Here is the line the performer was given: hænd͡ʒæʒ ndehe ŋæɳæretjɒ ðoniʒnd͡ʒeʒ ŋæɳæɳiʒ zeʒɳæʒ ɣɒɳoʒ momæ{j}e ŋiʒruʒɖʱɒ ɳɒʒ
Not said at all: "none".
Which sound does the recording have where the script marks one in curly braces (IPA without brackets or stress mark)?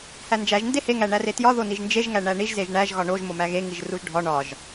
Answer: ɣ